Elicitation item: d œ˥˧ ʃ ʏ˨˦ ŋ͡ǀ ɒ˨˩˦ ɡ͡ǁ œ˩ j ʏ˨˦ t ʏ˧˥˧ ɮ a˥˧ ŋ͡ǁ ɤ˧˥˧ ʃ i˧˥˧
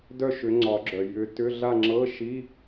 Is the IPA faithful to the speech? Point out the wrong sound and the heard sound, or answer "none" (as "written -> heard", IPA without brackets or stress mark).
none